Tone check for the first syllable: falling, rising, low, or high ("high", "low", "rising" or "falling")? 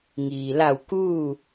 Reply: low